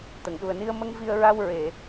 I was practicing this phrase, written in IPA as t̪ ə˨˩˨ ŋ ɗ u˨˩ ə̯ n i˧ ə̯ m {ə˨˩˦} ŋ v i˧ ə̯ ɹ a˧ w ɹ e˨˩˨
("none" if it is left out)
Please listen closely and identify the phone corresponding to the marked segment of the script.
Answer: ə˧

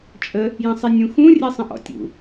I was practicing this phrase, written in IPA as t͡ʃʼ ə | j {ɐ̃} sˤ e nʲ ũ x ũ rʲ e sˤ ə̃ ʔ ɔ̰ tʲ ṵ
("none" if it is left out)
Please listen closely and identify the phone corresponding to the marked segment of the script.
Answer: ɐ̃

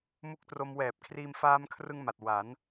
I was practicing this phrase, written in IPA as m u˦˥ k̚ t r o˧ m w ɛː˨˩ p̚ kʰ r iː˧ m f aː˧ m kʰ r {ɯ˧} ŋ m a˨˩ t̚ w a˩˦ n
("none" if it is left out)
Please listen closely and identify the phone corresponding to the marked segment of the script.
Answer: ɯ˧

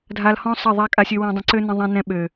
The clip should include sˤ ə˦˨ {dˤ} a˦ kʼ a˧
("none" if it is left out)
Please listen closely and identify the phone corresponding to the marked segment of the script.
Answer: ðˤ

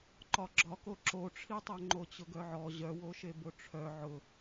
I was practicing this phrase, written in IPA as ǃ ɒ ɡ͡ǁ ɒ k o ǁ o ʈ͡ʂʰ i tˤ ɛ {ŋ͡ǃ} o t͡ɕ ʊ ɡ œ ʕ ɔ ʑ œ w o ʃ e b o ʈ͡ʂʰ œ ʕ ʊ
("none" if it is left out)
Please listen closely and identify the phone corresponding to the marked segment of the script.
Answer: ŋ͡ǃ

